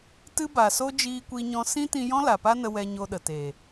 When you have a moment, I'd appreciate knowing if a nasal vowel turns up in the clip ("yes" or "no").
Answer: yes